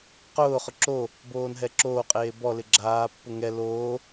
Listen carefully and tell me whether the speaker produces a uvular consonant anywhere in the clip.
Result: yes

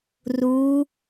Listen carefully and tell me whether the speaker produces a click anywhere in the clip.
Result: no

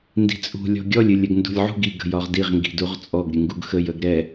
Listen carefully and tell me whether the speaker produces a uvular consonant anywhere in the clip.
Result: yes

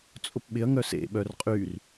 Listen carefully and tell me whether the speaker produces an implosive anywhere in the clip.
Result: yes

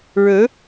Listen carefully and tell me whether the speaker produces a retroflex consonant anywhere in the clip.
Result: yes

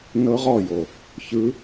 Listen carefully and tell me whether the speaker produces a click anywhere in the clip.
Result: no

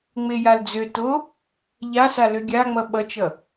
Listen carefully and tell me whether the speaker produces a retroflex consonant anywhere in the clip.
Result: no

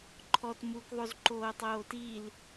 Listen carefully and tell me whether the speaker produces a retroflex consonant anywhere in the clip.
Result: no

